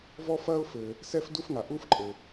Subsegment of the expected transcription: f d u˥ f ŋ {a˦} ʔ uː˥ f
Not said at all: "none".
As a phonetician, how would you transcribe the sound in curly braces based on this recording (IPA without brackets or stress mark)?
a˨